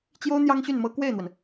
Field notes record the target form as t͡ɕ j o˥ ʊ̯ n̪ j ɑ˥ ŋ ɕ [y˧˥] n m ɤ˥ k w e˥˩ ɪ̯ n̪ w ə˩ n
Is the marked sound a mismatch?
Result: yes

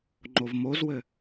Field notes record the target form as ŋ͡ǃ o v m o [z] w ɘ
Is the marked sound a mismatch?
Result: no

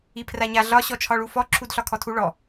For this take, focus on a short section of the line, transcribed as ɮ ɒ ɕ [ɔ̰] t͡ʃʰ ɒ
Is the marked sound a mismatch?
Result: yes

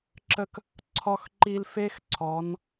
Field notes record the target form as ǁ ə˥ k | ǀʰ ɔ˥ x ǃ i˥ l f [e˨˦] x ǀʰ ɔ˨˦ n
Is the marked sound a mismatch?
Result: yes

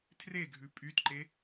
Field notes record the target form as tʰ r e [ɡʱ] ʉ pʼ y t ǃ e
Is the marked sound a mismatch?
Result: no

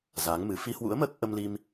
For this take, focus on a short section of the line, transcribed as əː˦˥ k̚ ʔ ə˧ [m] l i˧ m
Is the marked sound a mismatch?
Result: no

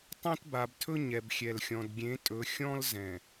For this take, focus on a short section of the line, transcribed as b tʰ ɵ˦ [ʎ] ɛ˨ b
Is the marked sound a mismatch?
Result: yes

